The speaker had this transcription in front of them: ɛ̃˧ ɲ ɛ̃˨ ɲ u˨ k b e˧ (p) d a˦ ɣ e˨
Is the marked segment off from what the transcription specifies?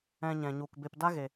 no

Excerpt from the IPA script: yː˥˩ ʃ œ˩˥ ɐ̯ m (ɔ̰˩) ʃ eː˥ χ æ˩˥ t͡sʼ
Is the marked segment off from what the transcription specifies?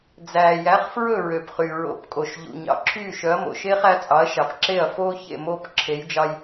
yes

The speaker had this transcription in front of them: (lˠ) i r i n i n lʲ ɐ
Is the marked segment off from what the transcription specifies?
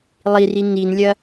no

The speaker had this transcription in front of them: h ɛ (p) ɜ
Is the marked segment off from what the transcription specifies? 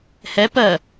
no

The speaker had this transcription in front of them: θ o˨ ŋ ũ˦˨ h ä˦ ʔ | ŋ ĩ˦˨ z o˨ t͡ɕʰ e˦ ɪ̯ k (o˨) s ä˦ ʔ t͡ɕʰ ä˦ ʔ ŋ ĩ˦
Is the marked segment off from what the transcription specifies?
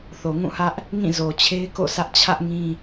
yes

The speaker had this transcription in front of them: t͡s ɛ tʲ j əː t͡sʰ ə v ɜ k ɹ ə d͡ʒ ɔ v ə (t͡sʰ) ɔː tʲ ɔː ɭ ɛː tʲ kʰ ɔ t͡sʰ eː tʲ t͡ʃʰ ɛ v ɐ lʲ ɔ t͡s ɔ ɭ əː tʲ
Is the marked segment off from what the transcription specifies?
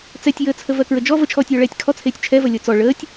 yes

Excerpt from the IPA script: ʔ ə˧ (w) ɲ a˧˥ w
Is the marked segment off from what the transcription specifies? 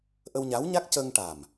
no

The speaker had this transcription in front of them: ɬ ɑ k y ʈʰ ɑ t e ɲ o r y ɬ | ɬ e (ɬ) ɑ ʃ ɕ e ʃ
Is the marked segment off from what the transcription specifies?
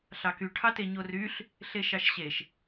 yes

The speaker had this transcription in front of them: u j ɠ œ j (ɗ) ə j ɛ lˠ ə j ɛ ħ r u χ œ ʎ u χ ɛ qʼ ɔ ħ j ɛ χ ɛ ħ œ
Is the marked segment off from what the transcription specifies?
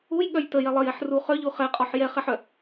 yes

